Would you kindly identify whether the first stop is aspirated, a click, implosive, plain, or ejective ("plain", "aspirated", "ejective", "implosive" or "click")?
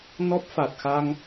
plain